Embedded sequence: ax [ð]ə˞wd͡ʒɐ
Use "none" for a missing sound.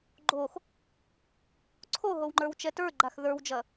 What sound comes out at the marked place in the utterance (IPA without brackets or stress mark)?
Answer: ð